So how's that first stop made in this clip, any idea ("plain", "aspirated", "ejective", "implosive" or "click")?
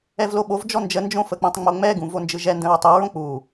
implosive